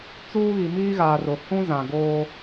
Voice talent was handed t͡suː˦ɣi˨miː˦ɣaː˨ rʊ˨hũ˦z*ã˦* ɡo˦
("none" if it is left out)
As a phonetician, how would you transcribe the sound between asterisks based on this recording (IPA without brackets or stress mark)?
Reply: ã˨